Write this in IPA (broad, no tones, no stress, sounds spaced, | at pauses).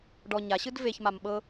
ɖ ɔ ɲ a ɕ ɯ d v e ç m a m ɓ ɤ